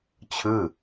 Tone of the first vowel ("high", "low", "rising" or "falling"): falling